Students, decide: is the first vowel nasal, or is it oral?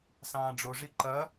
nasal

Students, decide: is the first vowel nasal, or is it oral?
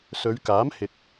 oral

